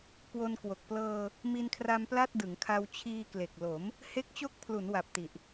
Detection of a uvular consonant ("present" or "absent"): absent